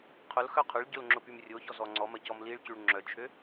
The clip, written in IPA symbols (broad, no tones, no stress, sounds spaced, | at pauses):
qʰ ʊ l x œ qʰ ʊ ɭ ɟ ʊ l ŋ͡ǁ ʊ p y m rʲ o ç ɔ z ɔ ŋ͡ǀ ɔ m ɐ c ɔ m l i ɭ c y ɭ ŋ͡ǁ œ t͡ʃʰ ø